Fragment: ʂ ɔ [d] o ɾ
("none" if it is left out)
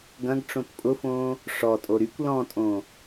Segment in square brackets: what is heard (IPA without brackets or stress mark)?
tʼ